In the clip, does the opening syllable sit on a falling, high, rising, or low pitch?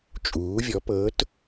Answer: rising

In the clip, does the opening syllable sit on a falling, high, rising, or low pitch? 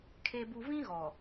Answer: low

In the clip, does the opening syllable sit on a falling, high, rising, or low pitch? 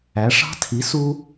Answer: rising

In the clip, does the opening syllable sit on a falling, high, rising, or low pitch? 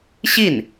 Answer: falling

